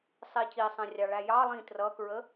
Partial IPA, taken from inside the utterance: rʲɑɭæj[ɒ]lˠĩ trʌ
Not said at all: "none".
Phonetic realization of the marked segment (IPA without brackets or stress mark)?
ɑ